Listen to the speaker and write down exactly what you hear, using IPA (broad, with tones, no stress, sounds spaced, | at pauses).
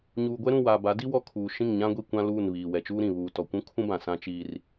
ɲ uː˨ ɡʷ ɛ˦ ɾ ũ˦˨ w aː˨ b a˨˦ d i˦ w ɔ˦˨ kʰ uː˨ ʃ ĩ˦˨ ŋ ɲ ã˦ ɡʷ i˦˨ kʷ ã˦ l uː˦˨ n β iː˨ w ɛ˨ t͡ʃ uː˦ ɾ ĩ˨ β uː˨ t ɔ˨ kʷ ũ˦ kʰ ũ˦ b ã˨ s ã˦ t͡ʃ iː˦ r